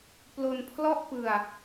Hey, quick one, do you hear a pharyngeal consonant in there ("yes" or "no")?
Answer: no